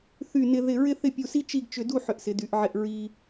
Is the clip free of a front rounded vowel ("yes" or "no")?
no